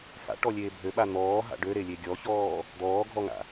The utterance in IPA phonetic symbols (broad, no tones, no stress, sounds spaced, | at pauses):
f a̰ ʈ ɔ lʲ eː bʱ ø ɓ a n̪ ɔː ɦ a̰ ɖ ø ɾ e lʲ e ɡʲ ɔ ç ɔː | d̪ ɔː ɡʱ ɔ ŋ a̰